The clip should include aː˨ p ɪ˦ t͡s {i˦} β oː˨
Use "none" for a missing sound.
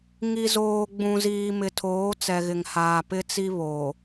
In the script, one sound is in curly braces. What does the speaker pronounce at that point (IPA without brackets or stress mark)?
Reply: i˦